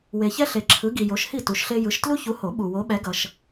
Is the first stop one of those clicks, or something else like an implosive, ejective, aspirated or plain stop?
click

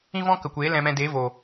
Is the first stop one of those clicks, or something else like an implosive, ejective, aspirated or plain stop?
plain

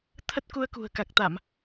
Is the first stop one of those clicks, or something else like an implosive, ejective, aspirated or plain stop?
aspirated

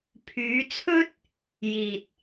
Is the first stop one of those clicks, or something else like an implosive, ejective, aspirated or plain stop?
aspirated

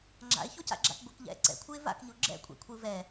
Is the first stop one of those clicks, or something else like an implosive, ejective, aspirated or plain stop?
click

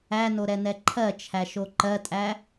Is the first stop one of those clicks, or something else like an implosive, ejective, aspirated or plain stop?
click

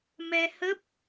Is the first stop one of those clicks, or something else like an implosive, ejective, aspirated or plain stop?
plain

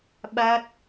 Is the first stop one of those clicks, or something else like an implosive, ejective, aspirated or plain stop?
implosive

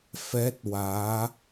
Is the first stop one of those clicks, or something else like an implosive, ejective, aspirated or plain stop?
plain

